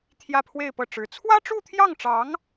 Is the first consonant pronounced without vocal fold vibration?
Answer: yes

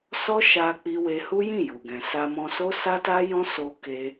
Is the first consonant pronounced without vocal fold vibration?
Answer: yes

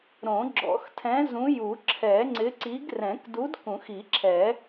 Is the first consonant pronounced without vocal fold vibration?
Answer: no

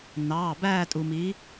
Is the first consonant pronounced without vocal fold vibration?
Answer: no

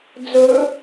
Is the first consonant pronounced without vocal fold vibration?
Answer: no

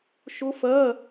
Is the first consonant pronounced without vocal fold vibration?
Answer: yes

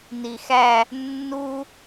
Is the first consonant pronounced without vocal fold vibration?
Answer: no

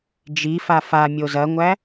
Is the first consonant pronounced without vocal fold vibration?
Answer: no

